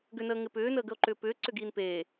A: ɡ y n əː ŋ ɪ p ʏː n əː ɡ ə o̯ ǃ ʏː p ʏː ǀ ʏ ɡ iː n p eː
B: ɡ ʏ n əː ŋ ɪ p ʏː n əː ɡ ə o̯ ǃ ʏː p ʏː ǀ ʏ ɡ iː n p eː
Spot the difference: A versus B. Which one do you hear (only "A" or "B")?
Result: B